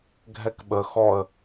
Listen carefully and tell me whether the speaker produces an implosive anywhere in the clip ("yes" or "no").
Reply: yes